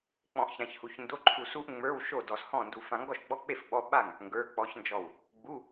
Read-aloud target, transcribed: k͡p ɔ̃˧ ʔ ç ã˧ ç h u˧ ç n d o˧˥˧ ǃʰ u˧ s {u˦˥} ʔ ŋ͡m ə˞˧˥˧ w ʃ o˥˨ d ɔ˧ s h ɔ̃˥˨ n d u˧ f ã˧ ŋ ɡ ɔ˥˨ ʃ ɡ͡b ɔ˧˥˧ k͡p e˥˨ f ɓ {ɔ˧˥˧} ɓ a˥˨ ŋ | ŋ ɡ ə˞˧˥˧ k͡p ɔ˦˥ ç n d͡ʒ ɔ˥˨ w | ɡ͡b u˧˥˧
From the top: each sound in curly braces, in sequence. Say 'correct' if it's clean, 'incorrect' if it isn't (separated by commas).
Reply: correct, correct